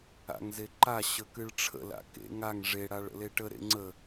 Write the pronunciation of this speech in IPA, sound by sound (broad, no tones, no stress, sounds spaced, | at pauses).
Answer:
a̰ ŋ z e ǃ a ɕ ə k ɨ ɭ ʈ͡ʂʰ ə̰ l a̰ k ḛ ŋ a ŋ ʐ e ɽ a ɭ ə̰ l e ʈ ə ɾ ḛ ŋ͡ǀ ə